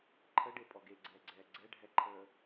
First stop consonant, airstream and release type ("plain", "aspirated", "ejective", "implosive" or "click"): click